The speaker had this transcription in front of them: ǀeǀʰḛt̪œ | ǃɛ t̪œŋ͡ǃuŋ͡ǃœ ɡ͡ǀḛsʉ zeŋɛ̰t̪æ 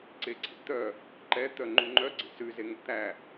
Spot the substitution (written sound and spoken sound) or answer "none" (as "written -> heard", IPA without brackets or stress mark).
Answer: none